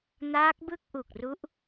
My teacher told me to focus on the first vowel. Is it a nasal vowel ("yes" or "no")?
no